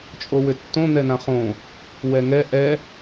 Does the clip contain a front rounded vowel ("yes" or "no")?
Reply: yes